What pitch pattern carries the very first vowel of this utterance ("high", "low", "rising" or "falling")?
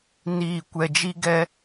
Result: low